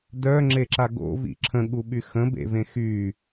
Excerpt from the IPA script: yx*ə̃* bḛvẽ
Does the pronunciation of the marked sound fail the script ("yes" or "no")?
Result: no